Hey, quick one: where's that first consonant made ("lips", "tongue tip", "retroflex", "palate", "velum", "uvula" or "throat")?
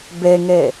lips